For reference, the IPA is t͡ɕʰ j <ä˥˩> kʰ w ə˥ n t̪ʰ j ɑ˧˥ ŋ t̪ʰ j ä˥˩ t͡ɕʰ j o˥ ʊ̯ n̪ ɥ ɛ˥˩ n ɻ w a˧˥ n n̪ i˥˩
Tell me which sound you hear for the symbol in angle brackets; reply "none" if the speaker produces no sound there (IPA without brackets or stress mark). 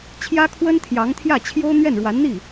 ä˥